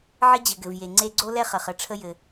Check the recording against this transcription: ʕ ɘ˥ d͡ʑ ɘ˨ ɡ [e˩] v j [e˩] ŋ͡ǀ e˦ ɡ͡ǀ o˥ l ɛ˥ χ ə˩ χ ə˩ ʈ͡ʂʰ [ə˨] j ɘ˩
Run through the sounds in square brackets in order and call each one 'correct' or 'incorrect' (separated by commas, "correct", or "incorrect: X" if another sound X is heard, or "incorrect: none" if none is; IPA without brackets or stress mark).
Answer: incorrect: ɘ˩, correct, incorrect: ə˦